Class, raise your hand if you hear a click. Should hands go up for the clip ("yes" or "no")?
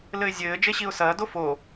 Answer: no